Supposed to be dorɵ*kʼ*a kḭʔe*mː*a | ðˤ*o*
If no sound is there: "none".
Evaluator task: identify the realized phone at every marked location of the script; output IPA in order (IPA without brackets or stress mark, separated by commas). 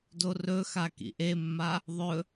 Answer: x, mː, ɵ